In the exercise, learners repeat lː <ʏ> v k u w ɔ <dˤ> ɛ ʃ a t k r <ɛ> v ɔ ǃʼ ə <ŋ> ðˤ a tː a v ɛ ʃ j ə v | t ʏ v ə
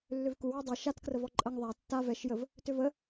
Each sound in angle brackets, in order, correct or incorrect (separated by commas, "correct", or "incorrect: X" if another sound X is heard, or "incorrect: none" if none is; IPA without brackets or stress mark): correct, correct, incorrect: ə, correct